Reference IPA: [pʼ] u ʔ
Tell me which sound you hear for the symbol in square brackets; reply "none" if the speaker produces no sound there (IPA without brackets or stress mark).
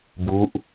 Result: b